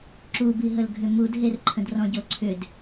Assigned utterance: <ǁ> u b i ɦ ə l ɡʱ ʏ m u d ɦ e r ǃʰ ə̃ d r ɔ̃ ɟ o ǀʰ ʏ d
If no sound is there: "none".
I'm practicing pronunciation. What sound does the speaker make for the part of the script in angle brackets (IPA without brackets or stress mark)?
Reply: ǁ